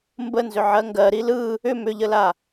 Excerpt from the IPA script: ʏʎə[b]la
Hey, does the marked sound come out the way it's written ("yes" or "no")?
no